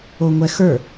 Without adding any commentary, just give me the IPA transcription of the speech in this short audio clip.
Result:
oŋʷɛxə˞

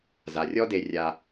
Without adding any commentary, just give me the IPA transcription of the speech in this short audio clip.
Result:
za˨rʲɔ˦de˧ rʲa˧

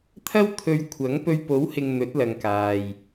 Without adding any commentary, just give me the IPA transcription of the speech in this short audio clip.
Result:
t̪ʰɐ˥w t̪ʰɵ˧ɥ kʷʰɐ˨˥ŋ pɵ˧ɥpo˨˥whɪ˨ŋ n̪ɵ˨˥t̚lɐ˨ŋkaː˨j

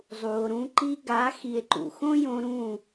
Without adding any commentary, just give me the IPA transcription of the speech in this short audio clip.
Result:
zˤu˨o̯ɾũ˧ ǃi˧ɡa˨˦ xi˨e̯ǃṵ˨xõ˦jõ˧ ɾũ˦˨

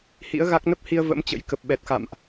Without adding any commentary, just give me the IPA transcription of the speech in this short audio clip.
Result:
hḭ˧˥ə̯ɣa˦˥k̚ nə˦˥p̚hi˧ə̯ və̰˧˥mt͡ɕə̰˧˥j kə˨˩p̚ɓɛ˨˩t̚xa̰˧˨mʔ

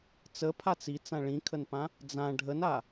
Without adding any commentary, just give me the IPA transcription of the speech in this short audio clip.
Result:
t͡səpʰat͡s it͡sã ɭĩkʰənpã | d͡zã ɖʱəna

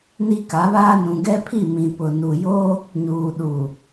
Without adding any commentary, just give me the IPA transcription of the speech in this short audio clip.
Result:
ni˦ka˨˦βaː˦ nũ˨ɡɛ˦pʰi˦˨ mĩ˨pʊ˨ nu˨jo˦ | ɲuː˨ɗu˨

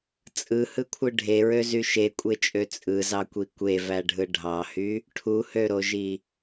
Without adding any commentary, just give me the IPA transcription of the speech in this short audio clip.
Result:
t͡sʼɯhɯkʷʰɯ ɖʱeɹøzy ʃekʷʼet͡ʃʼø t͡sʼɯzɑkʷi kʷevæɖʱɯ ɖʱɑhy | ʈʰuhøɾoʒi

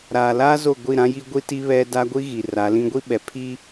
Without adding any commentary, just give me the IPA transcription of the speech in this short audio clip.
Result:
ɾaː˨laː˦zo˦˨ ɡʷi˦˨ɾã˦ji˦ ɡʷi˦ ti˦βɛ˦ da˦ɡʷi˦ ɣi˨ ra˨˦lĩ˦ ɡʷi˦ɓɛ˨ pʰi˦

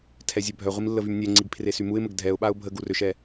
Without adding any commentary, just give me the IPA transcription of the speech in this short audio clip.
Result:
tʰɛzʲɛbʱœʁʷim lːəvymnʲɛŋ͡ǀiɡ pʰresymuɪ̯məɡ dʱɛʊ̯ɓaʊ̯ bʱə ɡurøʃɛ

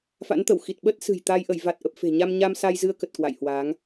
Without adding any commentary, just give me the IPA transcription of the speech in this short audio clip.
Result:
fa̰˧˥nt̪ə˧˩w xi˨˩t̚ɓə˦˥t̚sɨ̤˨˩j t̪a˧j ʔə˧˩jva˨˩t̚ʔə˨˩p̚ fe̤˨˩ɲa˧m ɲa˧m sa˧j zɨ˧ə̯kə˨˩t̚ kwa̰˧˨jhwa˨˦ŋ

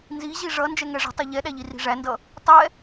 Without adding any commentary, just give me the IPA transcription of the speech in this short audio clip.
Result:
nziʑi ʐʌ nd͡ʒɛŋɛʐə̤tˤi ʎɛɗæʎi ri̤ʐændʌ | tˤɛ

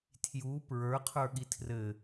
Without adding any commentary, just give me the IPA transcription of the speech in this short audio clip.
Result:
tʰju pɹə˞qʰə˞ɠi tʰrɘ

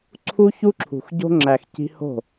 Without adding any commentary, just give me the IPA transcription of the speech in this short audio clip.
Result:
ǀʰu˦çu˦ǁʰṳ˨xɟo̤˦ ŋ͡ǁæ˨x ci̤˦ ho̤˦˨

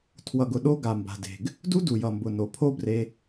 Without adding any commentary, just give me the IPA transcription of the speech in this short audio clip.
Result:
tʰwʌ˨ɡʊ˧ ɗo˦ ɡa˨mba̤˨de̤˨ɡ | du˦du˨jʌ˨mbʊ˨ no˨pʰo˦bre˧

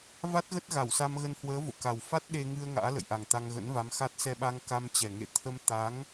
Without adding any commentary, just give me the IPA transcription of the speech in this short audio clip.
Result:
va˦˥t̚ɣə˦˥t̚ ɣa˧˩wsa˧mɣə˧nhwəː˨˦ vo̰˧˨ka˨˩w fa˦˥t̚ɗe˧ŋɨ˧ə̯ ŋa̰ː˧˥lə̰˧˨jʔa˨˩ŋ t̪a˧ŋɣə̰˧˥nva˨˦mxa˦˥t̚ sɛ˧ɓa˧ŋ ka˧mt͡ɕɛ˨˩ŋḛ˧˨ t̪ʰə˧mt̪a˨˦ŋ

